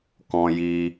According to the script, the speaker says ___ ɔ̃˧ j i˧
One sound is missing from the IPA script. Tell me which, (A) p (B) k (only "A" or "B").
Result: B